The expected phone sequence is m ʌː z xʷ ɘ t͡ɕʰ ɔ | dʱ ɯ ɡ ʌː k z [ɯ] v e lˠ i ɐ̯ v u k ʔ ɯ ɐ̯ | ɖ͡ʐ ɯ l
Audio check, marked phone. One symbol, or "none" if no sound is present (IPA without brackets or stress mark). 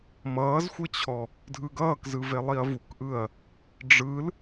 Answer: ɯ